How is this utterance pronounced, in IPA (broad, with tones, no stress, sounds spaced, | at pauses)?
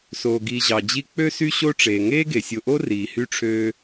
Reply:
s o˩ ɡ i˨ ʑ ɑ˩ d͡ʑ i˦ k͡p ø˥ s y˥ ɕ o˥ ʈ͡ʂ eː˩ ŋ eː˥ ɡ e˩ sʲ o˨ ʔ o˥ r iː˩ h y˥ ʈ͡ʂʰ øː˦